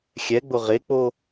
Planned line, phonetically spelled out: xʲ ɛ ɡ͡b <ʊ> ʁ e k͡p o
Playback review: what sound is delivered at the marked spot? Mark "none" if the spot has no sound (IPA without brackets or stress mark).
ʊ